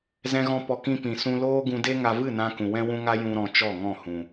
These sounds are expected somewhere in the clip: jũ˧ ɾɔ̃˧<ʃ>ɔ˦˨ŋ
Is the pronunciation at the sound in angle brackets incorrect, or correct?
incorrect